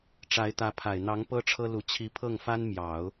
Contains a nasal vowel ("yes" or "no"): no